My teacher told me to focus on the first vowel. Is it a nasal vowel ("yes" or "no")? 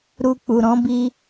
no